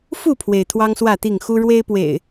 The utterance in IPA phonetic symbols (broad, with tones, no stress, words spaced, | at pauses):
fu˥˨pʰwe˩ɪ̯ t̪ʰwɑ˦ŋswä˥˨t̪i˥˨ŋ xu˦ ɻwe˦ɪ̯pwḛ˨˩ɪ̯